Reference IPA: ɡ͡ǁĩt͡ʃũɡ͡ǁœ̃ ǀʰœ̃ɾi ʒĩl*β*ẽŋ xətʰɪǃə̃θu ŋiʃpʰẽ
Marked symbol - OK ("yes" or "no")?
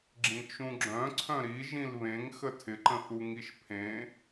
yes